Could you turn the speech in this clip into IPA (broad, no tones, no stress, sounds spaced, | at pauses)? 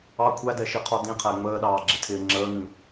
ɑ kʷʰ æ d ɛ ʃ i qʰ ɔ d ĩ qʰ æ ŋ͡m əː ɗ ɑː ɡ͡ǁ ɪ tʰ ɪː ŋ͡ǁ əː ŋ ĩ